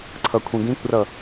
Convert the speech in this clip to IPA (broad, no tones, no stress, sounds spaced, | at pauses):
ǀʰ ɤ kʷʰ ĩ ɡ ĩ kʷ r ɤ